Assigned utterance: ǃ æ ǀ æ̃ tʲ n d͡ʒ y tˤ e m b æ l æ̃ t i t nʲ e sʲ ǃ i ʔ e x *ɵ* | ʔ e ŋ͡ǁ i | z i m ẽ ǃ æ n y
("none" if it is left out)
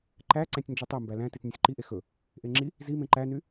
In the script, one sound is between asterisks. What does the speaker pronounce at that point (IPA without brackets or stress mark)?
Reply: ɵ